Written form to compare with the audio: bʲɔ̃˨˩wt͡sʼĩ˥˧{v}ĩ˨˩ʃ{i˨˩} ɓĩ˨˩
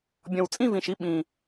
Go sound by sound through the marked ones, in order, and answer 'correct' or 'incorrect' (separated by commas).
correct, incorrect